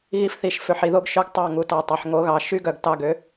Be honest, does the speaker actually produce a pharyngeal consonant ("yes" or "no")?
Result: yes